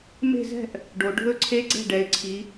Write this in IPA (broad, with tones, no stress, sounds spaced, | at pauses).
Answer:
m e̤˥˧ z ɛ̤˥˧ ʔ | ɖ o˨˦ ɖʱ ɵ˥˩ ǀʰ e˦˥ ɡ͡ǀ ɛ̤˥˩ ɖ ɛ˨˦ ɪ̯ ǀʰ i˨˦